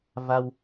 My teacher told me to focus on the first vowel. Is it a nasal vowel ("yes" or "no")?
no